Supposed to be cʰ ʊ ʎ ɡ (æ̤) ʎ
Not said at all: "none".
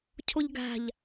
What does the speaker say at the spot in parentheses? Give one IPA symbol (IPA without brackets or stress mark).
æ̤